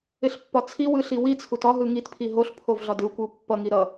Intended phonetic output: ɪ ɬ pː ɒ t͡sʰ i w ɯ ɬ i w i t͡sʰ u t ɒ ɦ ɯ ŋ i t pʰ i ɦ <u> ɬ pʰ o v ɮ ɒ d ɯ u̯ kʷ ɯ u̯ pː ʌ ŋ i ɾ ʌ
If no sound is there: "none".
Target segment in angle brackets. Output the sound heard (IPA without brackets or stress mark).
o